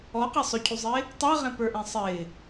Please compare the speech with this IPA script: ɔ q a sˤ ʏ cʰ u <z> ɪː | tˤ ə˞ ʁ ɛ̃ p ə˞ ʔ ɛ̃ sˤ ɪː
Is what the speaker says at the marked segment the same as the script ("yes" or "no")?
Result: no